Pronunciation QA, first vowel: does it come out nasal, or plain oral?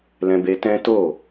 nasal